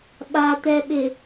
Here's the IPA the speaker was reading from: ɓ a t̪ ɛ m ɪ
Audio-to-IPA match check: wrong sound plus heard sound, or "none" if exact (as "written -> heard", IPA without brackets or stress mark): m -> ɓ